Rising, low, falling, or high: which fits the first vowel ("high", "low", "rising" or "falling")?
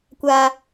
high